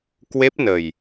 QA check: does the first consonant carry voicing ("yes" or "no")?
no